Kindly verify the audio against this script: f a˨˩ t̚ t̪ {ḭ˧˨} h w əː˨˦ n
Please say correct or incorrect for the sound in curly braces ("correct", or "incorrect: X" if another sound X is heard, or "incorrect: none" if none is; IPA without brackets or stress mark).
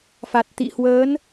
correct